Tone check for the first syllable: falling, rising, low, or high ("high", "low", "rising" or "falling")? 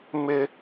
high